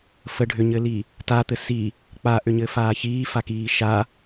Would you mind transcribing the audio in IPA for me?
fə ɖʱʏɲɘli | tat̪ɘ si | k͡paʔʏɲɘːfaː çiːfakiː ʃa

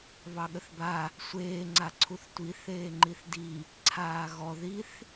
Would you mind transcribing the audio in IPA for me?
βɑɠəθba | sʷeː ŋ͡ǀaǀʰuθtʷi θeːŋ͡ǃiθdi | ǀʰaːɣɔ ðiθ

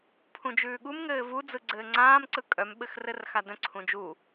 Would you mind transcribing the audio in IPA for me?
pʰũd͡ʒʉːɠum ŋɘːvu d͡zɯɡ͡ǀɘːŋ͡ǀãːm ǀɯkʼœm ɓɘxrɘrxadœ̃ ǀʰũd͡ʒu

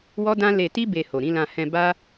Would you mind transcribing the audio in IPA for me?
wɔ˦dã˦ le˧ti˦ be˧ho˨ɾĩ˨˦lã˧ hɛ̃˧ ba˦

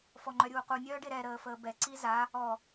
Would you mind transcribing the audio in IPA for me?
fɔŋ͡ǃœɾʲuːqu nʲœːɖeɾɛ ɾəːfəːbɛ ǀiza | ɔ

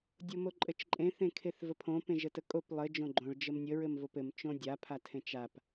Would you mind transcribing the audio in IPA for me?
dʲomoǃʼɘt͡ʃǃʼẽ θẽkʰeθvəpʰõ pẽʒətəkʼop lˠɘ d͡ʒõɡ͡ǃõɭ d͡ʒəmnʲə ɹɘmvopɘm t͡ʃõdʲa pʰatʰẽt͡ʃap

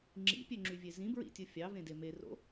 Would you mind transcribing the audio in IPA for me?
ŋ͡ǁḭpʲøŋ͡ǁyvʲe zĩbɹḭtʲɯ fʲɑvẽde mero̰

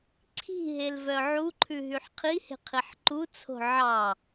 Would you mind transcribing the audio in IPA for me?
ǀʰi̤ɦelvœ ʕuǃʰʉɦyħ qʰihe̤qʰiħ ǃut͡sʰo̤ ʕɑ

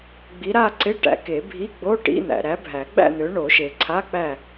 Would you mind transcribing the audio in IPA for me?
ɡ͡bi˨˦ɾa˥˧ǀɪ˧˥˧ ʈæ̰˨˦ke˨˩˦bʱi˧˥˧ ɡ͡bo˧˥˧ʈḭ˧˥˧n̪æ̰˨ ɾæ˨˦bʱæ˨˩˦ɡ͡bæ̰˥˧n̪ø˨˦ ɳo˨˩˦ʃe˨ ǀʰa˧˥˧k͡pæ˥˧

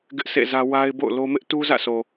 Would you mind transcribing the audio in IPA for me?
ɡɪ˦ʔsḛ˦˨zä˦ wa˦ɪ̯bo̰˦˨ʊ̯lo˦ mɪ˦ʔtu˦zä̰˦˨so˨

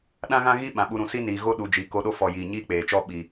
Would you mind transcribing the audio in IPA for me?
ɗã˦ɣã˦ɣi˦ ɓã˨ɓu˧ ɾũ˨si˦niː˨ɣo˦ ɗu˨d͡ʒi˨ ko˧ɗo˦fɔ˨ jiː˨ɲiː˦k͡peː˨t͡ʃɔ˦ ɓi˨

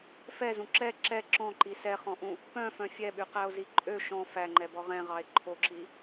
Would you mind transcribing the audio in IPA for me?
fɛzũ ǁɛ ǁɛ ǁɔ̃ǃi sɛχɔ̃ʔũ | pœ̃fœ̃ fʲɛɓyqæo̯zi ǃʼø ʃɔ̃ fæŋ͡ǃɛbɔ ʁɛ̃ʁɑe̯ ǃʰoǁi

